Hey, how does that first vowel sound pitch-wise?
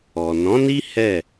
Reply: low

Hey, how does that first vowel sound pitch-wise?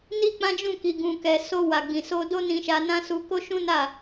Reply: high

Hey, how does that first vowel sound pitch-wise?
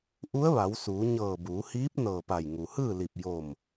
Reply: rising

